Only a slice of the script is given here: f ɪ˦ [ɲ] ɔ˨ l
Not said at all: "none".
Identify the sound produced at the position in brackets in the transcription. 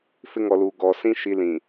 ŋ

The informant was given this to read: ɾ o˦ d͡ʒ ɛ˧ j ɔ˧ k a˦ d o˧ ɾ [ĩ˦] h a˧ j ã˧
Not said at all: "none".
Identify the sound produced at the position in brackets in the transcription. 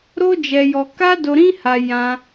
ĩ˦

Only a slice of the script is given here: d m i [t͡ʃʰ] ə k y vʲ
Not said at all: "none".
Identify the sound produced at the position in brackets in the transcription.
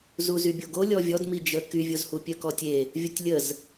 d͡ʒ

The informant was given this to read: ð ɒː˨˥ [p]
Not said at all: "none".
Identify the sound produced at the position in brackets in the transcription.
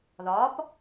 p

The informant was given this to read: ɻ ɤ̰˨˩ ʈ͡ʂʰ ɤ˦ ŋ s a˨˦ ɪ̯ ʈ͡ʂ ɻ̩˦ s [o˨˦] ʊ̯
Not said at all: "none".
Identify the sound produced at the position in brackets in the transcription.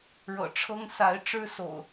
o̰˨˩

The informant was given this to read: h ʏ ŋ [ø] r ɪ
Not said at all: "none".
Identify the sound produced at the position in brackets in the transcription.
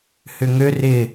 ø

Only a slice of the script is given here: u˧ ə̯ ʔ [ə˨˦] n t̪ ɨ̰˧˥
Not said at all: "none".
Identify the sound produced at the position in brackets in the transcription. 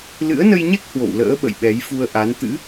a˨˦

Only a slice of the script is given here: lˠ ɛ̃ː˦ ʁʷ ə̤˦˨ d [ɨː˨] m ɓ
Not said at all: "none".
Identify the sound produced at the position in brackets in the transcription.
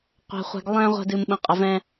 ɨː˨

